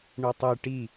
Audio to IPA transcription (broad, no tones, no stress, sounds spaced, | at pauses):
ɳ u tˤ ɯ ʈ i